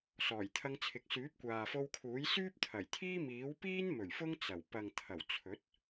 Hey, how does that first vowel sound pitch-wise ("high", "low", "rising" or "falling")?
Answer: low